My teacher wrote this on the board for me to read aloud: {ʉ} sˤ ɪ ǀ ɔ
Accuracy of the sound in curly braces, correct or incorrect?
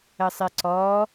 incorrect